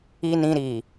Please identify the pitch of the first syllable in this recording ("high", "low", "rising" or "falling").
low